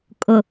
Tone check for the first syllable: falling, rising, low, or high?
low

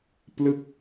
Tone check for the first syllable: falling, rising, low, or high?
falling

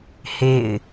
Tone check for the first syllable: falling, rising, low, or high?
falling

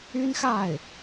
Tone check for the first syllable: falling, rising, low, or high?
high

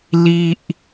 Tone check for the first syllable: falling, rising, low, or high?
low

